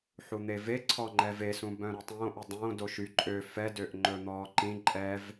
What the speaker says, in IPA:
ħ u n̪ e v e ǀʰ ɔ ŋ͡ǃ ɛ v e s ũ b œ̃ ɾ u tˤ õː ʔ ɵ dˤ õː d o ʃ y ǃʼ ø f ɛ d ø ʔ ŋ͡ǃ ɵ n̪ ɔː ǃ ĩ ǃʼ ɛ v

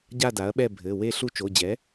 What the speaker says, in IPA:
ɟ a˦˨ d a˩˥ ɐ̯ ɓ ɛ˦˨ bʱ ɘ˩˧˩ w e˦˨ ɬ u˦˨ t͡ʃ o˩˧˩ d͡ʑ ɛ˩˥

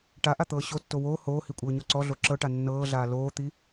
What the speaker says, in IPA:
ʈ a ʔ a t̪ ɤː ɕ o tː o w oː h oː h i kʷʼ ɤː ɲ ɔ ǀ ɔ ɮ o ǁ ɤ ʈ a nː ɤː ɮ aː l oː t̪ i

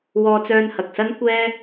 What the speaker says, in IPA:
w ɔː˧ t͡s œː˧ n h ɐ˨ k̚ s ɐ˥ n kʷ ɛː˥

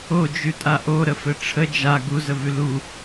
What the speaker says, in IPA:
o d͡ʒ ʉ tʼ a ʔ o ɾ ə f ɘ ʈ͡ʂʰ ə d͡ʒ a ɡ u z ə v ʉ l u

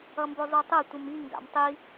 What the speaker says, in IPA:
ʌ m b o zˤ u tˤ ɯ tʷ ɯ m i ŋ ɡ a̰ m tˤ i

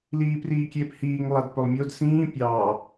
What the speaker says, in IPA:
l iː p r iː kʲ eː p h iː ŋ lˠ a d p ɵ lˠ mʲ o d s ĩː pʲ ɑː

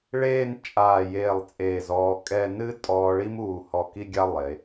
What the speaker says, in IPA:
ɭ eː˥˧ n t͡ʃʼ aː˧˩ j eː˧˩ lˠ t͡sʼ eː˧˩ z ɔː˧ kʼ ɛ˥˧ n ɨ˥ tʼ ɔː˧ ɭ i˥ m uː˧˩ h ɔ˧˩ k i˥˧ ɡʲ a˥ lˠ e˩˧

